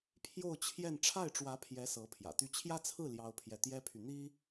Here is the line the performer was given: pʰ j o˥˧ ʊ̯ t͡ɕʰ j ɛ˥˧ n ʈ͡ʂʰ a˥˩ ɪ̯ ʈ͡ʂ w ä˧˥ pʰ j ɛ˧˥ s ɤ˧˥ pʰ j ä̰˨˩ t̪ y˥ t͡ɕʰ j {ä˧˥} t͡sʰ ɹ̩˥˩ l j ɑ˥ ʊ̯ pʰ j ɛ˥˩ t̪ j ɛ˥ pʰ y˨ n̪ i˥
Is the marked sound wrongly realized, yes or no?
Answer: yes